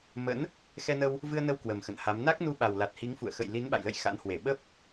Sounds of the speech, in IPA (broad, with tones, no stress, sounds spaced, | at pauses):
m ə̰˧˥ n | x ɛ˧ n ə˧ w | v ɨ˧ ə̯ n ə˧ w k w ə˨˩ m x ə̰˧˨ n h a˨˦ m n a˦˥ k̚ n u˧ ɓ a˨˩ w l a˨˩ t̚ h i˨˦ ŋ f ṵ˧˨ ə̯ x ə̰˧˨ j l i˨˦ n ɓ a̰˧˨ j l ə̰˧˨ j x a̰˧˥ n h w e˧˩ ɓ ə˦˥ p̚